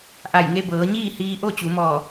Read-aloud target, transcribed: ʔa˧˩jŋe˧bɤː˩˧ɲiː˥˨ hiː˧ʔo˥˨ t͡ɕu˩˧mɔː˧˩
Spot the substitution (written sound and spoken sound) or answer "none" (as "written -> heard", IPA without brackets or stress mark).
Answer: none